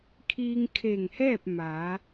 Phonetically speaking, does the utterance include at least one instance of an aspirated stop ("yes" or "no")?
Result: yes